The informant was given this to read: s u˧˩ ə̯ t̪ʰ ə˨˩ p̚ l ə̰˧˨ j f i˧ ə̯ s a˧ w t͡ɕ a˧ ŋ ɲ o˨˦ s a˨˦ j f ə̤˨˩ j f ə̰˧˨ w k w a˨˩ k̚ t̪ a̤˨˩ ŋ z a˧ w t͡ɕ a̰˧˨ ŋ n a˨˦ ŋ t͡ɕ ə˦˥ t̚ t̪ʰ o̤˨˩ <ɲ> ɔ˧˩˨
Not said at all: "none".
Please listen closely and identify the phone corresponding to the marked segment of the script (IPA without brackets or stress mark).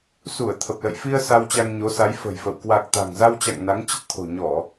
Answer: ɲ